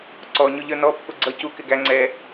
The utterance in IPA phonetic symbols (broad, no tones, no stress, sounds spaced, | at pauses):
ǀ ɔ ɲ ʊ ʎ ə˞ n ɔ pː ʊ ɡ͡ǀ ʌ c u k ɪ ɡ æ ŋ͡ǀ ɛ